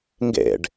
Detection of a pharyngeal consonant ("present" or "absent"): absent